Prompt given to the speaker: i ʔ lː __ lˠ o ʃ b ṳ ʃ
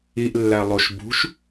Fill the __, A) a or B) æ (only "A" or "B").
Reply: B